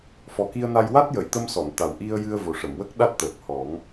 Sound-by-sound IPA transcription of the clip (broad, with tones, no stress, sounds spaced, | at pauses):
f ɔ˨˩ k i˧ ə̯ n a˧ j w a˦˥ t̚ j ə˨˩˨ j t̪ ə˧ m s ɔ˨˩˨ n t̪ a˨˩ w ʔ i˧ ə̯ j ɨ˧ ə̯ v o˨˩ ʂ ə˨˩˨ m w ə˦˥ k̚ ɗ a˦˥ t̚ t̪ əː˨˩ k̚ h ɔ˨˩˦ ŋ